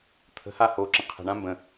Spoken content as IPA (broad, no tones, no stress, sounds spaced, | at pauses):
t̪ʰ ə̤ h a h o ǁ ə̃ qʰ ə̤ ɳ ã m b ə̃